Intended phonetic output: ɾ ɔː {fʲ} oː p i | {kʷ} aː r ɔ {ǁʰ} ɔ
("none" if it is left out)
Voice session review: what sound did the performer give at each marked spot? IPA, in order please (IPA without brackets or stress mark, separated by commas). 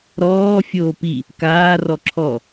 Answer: fʲ, k, ǁʰ